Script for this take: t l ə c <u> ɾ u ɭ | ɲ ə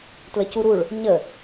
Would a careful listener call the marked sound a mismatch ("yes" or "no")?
no